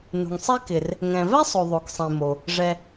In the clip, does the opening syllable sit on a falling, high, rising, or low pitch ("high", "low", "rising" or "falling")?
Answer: low